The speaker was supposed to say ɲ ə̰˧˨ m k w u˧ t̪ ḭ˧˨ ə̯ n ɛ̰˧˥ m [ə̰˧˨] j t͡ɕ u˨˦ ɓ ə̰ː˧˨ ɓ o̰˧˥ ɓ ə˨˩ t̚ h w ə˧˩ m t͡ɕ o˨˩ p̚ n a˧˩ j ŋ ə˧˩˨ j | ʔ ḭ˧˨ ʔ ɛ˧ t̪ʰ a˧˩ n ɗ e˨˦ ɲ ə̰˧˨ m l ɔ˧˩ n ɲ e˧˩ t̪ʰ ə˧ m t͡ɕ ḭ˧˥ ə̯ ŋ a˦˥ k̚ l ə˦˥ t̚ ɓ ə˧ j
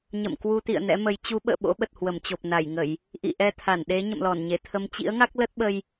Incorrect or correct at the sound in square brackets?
incorrect: ə˨˦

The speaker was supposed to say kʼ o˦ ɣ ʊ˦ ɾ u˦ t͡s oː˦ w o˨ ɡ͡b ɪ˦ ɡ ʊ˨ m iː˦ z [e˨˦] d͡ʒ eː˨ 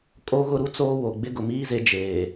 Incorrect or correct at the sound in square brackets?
correct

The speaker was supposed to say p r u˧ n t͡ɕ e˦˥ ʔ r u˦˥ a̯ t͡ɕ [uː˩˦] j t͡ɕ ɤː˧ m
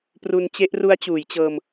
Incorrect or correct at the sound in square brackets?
correct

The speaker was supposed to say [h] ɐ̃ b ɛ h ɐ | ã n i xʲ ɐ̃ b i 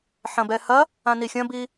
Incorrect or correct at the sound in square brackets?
incorrect: ħ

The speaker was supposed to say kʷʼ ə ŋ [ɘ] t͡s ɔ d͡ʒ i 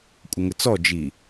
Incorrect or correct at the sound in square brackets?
correct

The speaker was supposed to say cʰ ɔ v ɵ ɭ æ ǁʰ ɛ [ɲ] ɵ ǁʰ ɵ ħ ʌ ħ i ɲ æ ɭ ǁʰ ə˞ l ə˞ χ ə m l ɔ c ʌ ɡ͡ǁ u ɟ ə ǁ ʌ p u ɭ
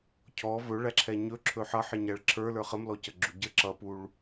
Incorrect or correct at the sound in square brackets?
correct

